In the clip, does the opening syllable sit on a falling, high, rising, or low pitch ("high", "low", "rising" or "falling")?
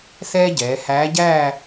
high